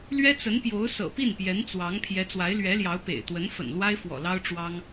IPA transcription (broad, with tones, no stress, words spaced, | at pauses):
lɥɛ˥t͡sə˧˥n pjo˧˥ʊ̯sɤ̰˨˩pi˥˩n pjɛ˧˥nt͡swɑ˧˥ŋ pʰjɛ˧˥t͡swa˧˥ɪ̯lɥɛ˧˥ljɑ˧˥ʊ̯ pḛ˨˩ɪ̯t̪wə˧˥n fə̰˨˩nlwa˥ɪ̯fwɔ̰˨˩ lɑ˥ʊ̯ʈ͡ʂwɑ˥ŋ